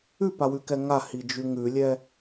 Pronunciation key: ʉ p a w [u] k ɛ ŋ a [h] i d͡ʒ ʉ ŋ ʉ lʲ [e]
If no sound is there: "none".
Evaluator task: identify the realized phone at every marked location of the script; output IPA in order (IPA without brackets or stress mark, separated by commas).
ʉ, h, ɛ